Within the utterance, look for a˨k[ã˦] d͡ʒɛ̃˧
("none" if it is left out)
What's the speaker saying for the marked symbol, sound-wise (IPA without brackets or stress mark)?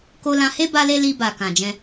ã˨